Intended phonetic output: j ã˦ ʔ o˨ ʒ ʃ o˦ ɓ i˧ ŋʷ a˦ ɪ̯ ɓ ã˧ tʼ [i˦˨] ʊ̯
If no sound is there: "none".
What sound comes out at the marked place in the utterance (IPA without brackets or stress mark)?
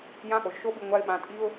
i˦